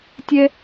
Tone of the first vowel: high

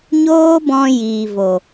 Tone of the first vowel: high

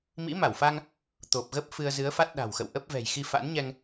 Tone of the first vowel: rising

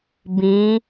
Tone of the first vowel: rising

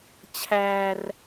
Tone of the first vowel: high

